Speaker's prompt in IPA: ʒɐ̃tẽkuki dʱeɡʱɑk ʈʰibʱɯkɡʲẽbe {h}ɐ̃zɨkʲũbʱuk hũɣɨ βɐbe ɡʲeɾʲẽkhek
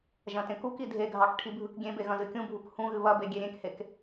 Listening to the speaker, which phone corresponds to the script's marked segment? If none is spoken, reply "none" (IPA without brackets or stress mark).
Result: ɣ